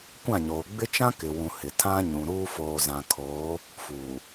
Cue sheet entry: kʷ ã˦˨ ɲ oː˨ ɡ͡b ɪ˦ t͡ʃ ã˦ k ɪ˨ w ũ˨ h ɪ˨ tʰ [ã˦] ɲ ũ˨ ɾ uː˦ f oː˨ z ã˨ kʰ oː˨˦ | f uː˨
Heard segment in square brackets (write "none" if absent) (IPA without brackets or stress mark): ã˦